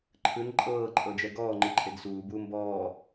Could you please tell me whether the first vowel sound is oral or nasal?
oral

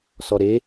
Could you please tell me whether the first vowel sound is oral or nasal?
oral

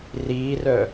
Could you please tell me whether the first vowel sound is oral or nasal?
oral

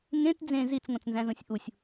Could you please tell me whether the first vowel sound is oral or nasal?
nasal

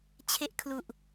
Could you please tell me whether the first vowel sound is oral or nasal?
oral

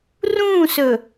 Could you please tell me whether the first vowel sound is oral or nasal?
nasal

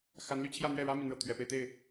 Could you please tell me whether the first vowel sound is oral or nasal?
oral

